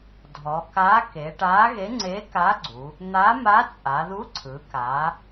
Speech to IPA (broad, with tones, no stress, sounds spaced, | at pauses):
dʱ ɔ˩˧ k aː˧˥ k e˩˧ ʈ aː˧˥ ɣ e˧˥ ŋ͡ǀ eː˧˥ k a˧˥ ɡ͡ǀ u˩˧ | n̪ a˧˥ m a˧˥ t͡sʼ a˩˧ ð u˧˥ ǀʰ ɯ˩˧ k aː˩˧